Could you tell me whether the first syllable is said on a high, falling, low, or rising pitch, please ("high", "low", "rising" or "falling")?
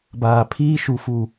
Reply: low